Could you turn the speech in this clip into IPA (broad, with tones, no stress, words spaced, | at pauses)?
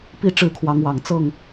pi˦ʈ͡ʂɻ̩˥˨kʰwɑ˨˦ŋwɑ˨˩ŋ t͡sɤ˥˨ŋ